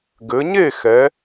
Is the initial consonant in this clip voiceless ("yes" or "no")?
no